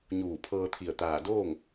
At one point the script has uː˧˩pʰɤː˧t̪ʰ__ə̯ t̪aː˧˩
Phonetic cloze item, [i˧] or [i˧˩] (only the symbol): i˧˩